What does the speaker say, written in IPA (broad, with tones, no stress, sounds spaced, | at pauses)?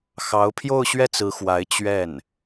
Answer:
x ɑ˧˥ ʊ̯ pʰ j o˥˧ ʊ̯ ɕ ɥ ɛ˥˩ t͡s ɹ̩˧˥ x w a˧˥ ɪ̯ t͡ɕ ɥ ɛ˥˩ n